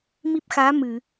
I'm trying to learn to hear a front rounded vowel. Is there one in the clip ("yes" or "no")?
no